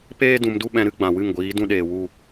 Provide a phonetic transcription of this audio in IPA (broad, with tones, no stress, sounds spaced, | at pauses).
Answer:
p eː˦ d ũ˧ m d u˦ ɓ ɛ̃˧ ɾ ɨ˧ ɡ͡b ã˨ w ɨ˦˨ ŋ ɡʷ iː˨˦ d ũ˦ ɗ eː˨ w u˦˨